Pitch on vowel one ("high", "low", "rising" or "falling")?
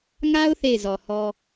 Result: high